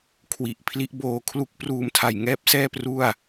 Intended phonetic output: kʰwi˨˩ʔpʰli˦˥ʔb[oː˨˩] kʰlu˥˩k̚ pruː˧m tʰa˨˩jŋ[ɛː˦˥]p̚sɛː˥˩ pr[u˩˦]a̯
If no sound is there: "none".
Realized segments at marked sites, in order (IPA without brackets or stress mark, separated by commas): oː˧, ɛː˥˩, u˥˩